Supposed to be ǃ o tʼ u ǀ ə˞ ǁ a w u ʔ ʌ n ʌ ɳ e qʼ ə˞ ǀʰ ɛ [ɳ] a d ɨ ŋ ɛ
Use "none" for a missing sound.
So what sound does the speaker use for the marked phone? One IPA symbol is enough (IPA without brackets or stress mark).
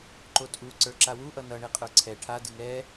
ʈʰ